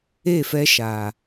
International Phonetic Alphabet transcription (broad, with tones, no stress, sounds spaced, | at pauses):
e˦˨ f ɛ˦ ʃ aː˨